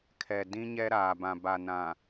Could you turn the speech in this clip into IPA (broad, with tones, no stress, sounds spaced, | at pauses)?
kʰ ɛ˨ d ĩ˦ ɲ ɛ˦ ɾ aː˨ b ã˨ b a˨ n ã˨